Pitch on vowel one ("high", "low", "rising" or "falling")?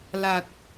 low